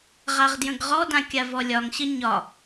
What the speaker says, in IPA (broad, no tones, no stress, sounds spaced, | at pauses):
ʁ a ʁ d j ə̃ ɡ ʁ ɔ d ã kʲ a v ɔ lʲ ɒ ŋ ɕ ə ɲ ɒ